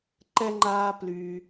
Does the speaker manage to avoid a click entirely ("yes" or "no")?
no